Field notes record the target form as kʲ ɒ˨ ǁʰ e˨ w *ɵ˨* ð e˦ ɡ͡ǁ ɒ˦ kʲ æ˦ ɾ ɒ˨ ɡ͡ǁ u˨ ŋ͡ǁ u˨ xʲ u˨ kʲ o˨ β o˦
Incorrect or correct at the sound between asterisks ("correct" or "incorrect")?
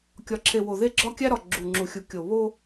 incorrect